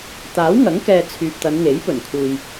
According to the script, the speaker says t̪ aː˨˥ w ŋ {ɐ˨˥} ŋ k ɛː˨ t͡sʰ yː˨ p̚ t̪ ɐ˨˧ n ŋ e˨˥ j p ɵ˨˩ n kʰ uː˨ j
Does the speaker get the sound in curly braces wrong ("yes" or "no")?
no